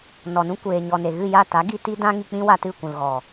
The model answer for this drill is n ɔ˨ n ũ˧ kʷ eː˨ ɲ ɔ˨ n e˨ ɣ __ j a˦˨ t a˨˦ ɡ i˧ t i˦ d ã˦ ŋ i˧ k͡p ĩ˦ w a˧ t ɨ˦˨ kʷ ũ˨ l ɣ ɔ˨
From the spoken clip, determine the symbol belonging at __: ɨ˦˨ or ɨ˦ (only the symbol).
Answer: ɨ˦˨